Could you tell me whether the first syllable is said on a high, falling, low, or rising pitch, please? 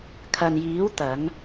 low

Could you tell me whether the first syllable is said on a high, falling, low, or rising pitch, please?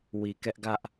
low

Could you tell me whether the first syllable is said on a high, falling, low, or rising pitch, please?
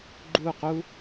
falling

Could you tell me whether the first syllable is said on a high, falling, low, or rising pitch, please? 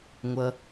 low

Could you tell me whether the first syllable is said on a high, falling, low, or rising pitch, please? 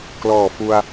low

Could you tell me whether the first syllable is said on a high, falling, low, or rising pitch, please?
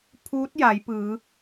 rising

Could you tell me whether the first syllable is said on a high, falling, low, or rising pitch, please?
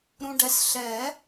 low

